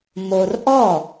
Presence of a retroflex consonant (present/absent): absent